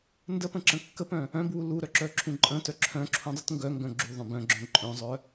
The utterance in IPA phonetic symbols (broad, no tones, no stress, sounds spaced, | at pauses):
n d ə p ə̃ ǁ ə̃ kː ə p œ̃ | œ̃ b w u l u ɾ œ ǁ œ ǁʰ ũ ǃʼ ə̃ t œ ǁʰ œ̃ ǁʰ ũ dˤ u t ŋ ɡ œ ŋ ɡ œ̃ ɡ͡ǁ u ðˤ œ̃ b œ̃ ɡ͡ǁ œ̃ ǃʼ œ̃ zˤ œ